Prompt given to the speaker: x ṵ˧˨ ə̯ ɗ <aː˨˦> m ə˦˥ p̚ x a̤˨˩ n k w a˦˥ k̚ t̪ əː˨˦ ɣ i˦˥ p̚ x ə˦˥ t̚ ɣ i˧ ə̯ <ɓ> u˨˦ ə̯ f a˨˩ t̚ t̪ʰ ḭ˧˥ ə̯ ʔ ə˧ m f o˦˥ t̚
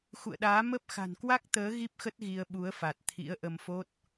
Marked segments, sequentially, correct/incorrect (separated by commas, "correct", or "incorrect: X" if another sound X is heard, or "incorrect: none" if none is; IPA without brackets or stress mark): correct, correct